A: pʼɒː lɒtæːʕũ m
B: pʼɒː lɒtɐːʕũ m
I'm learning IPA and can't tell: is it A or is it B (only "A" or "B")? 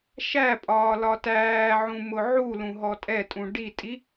A